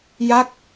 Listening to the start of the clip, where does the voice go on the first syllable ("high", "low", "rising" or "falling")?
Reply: falling